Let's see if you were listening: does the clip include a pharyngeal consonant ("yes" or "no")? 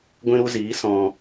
no